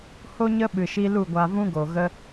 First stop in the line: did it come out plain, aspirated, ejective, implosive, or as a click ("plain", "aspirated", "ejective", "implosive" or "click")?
implosive